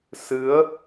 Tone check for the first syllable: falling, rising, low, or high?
rising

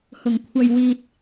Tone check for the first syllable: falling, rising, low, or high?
low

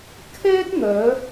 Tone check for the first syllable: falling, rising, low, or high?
high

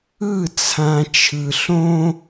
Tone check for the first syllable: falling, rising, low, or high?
falling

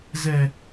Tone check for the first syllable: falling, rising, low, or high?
high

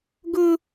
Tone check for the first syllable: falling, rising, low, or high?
high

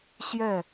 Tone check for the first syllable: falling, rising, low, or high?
falling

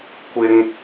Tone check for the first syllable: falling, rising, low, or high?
low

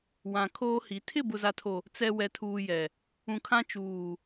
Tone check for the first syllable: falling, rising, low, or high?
low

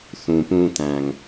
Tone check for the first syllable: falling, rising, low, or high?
low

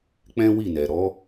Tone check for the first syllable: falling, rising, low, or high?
high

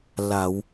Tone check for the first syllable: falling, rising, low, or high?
low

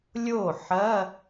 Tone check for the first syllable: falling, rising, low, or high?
falling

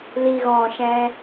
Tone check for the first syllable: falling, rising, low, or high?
low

